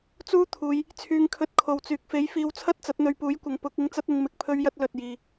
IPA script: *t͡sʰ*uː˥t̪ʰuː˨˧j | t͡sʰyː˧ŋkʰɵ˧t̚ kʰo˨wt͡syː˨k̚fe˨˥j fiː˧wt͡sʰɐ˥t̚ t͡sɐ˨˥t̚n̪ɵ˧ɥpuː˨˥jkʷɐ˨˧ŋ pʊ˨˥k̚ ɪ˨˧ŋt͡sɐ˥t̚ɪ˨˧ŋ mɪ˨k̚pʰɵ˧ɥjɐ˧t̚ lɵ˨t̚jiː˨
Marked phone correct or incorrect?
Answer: incorrect